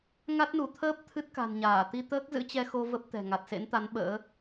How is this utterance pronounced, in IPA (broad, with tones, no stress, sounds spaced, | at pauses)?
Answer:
ŋ a˦˥ t̚ n u˧˩ t̪ʰ əː˦˥ p̚ t̪ʰ ɨ˦˥ t̚ k a̤˨˩ n ɲ aː˧˩ t̪ i˧ t̪ əː˦˥ k̚ z ɨ̰˧˥ t͡ɕ ɛ˧ x o˧ v ə˦˥ p̚ t̪ ɛ̤˨˩ ŋ a˨˩ t̚ s ḛ˧˥ n t̪ a˨˦ n ɓ ə̰ː˧˥